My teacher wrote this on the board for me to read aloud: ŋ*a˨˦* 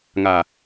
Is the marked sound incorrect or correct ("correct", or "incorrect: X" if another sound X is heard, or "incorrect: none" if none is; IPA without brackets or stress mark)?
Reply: incorrect: a˨